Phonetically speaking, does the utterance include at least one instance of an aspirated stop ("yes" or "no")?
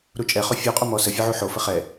no